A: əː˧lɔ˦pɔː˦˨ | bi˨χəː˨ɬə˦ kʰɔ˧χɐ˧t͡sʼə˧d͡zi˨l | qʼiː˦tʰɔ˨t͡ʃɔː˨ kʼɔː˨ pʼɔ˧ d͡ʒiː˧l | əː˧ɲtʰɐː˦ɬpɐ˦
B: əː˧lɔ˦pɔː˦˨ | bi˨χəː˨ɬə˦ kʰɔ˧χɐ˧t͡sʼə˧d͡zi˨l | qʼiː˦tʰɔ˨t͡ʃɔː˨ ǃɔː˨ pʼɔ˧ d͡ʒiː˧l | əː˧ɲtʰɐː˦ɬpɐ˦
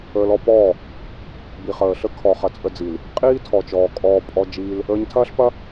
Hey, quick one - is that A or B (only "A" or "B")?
A